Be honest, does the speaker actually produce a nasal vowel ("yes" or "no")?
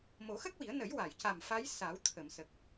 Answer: no